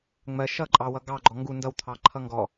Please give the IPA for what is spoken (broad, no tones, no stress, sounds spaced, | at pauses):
ŋ͡m ɜ ʃ ʌ ǃʼ ɑ w ʌ ɡ ɑ ɡ͡ǃ ɔ ŋ ɡ u n d ʌ w t̪ʰ ɑ ǃʰ ʌ ŋ ɡ ɔ